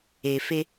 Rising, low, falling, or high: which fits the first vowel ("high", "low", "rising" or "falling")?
low